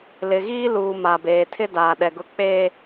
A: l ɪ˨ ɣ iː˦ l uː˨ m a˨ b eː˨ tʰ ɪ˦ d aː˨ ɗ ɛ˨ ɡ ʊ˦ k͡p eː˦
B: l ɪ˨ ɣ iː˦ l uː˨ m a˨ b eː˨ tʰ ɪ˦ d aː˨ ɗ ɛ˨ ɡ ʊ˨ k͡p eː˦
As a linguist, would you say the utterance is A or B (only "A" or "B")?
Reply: A